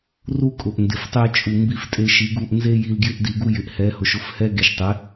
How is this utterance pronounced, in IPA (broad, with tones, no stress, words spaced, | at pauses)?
ru˦kʼʊ˨ʔ ndɪ˨ftˤe˧t͡ʃʼu˨ mbi˧ftʼe˧ʃi˨˦ɡu˧ʔ nze˦ji˧l ɡjɪ˧ʔdi˨ɡu˧ jɪ˨ʔhɛ˨˦hʊ˨ʃ ʊ˦fhɛ˦ ɡe˨ʃtˤɪ˨˦